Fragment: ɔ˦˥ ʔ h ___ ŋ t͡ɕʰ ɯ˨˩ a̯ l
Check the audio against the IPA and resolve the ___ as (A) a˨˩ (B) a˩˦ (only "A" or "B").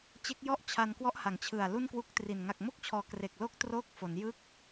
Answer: B